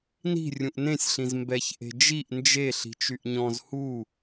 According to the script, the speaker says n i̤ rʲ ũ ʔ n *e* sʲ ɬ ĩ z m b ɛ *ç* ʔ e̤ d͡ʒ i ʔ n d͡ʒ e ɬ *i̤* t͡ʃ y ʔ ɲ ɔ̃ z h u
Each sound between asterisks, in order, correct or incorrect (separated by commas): incorrect, correct, correct